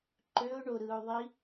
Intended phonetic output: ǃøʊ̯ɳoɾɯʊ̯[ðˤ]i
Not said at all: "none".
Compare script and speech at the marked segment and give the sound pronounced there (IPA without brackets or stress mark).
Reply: ðˤ